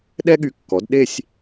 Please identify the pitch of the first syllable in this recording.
high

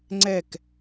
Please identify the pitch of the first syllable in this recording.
falling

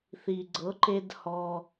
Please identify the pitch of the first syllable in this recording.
low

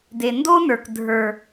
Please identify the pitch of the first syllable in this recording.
low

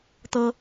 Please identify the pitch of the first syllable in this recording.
high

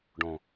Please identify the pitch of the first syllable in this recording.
low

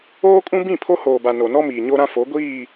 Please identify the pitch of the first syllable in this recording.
high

